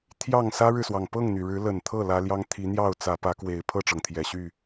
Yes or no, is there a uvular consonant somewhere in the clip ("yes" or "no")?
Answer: no